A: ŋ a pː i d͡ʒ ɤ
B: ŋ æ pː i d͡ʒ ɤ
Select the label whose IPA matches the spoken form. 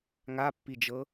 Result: A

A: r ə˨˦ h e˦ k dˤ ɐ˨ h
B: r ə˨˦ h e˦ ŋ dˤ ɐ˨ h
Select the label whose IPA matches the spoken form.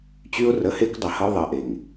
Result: A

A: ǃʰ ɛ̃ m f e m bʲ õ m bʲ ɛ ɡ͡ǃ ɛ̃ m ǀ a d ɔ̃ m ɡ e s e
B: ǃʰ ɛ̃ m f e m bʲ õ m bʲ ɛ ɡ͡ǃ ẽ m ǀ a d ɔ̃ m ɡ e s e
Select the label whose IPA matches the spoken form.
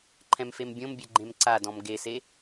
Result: B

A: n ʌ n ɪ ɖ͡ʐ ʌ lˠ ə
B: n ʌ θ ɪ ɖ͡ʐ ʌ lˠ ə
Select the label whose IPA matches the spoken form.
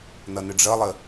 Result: A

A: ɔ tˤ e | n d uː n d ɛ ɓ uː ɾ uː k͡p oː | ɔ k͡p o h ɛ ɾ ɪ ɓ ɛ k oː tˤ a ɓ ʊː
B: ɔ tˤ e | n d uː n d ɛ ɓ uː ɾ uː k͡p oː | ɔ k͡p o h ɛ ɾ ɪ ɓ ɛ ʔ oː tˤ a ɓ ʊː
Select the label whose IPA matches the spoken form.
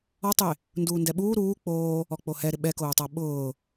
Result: A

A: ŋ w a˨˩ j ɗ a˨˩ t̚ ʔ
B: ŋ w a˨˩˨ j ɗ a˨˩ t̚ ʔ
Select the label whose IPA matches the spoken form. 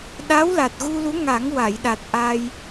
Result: B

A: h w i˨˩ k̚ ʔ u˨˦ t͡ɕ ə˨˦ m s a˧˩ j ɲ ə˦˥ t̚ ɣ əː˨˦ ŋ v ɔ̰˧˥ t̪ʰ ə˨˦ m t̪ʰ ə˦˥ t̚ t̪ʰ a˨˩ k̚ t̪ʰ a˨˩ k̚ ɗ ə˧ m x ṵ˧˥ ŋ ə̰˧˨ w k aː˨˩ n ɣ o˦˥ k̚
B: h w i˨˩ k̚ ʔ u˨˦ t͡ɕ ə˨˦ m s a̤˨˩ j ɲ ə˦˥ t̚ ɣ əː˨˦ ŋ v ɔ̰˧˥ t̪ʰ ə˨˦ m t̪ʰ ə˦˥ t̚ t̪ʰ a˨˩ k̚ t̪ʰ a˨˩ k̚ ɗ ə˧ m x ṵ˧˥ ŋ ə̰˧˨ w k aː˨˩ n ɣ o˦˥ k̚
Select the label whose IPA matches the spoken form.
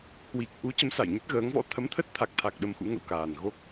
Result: A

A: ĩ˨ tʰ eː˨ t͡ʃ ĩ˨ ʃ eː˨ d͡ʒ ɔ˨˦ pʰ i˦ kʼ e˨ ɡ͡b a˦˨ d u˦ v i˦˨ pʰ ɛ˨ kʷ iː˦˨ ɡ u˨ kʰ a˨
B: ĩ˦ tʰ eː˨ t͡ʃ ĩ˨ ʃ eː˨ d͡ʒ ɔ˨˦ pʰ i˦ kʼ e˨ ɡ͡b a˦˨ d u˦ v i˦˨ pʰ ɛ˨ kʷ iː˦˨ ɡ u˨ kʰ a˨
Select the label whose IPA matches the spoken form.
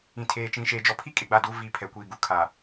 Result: A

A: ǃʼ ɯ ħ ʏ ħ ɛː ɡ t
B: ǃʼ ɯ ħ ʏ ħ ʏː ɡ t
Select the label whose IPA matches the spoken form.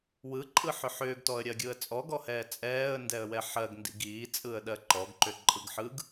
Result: B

